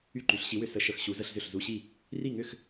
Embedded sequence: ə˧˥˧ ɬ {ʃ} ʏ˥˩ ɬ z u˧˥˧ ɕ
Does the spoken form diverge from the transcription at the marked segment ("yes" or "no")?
yes